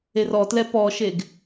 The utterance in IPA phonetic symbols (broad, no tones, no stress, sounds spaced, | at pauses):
e r ɔ t l ɛ p ɔ ʃ e ɡ